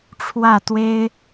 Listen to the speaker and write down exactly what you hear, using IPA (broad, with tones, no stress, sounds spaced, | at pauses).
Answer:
ʈ͡ʂʰ w ä˥˩ t̪ w e˥ ɪ̯